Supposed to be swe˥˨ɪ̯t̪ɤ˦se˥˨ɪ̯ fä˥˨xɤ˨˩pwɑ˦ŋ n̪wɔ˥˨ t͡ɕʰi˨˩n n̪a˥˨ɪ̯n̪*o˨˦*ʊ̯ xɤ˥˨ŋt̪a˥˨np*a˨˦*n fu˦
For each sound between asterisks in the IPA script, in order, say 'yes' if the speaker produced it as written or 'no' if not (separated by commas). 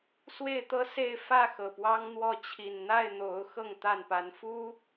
yes, yes